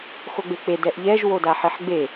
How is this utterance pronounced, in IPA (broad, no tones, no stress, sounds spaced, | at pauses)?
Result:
x o ɡ͡b e k͡p e d ɛ ʔ ʎ ɛ ʒ w o d a ħ e ħ ɡ͡b e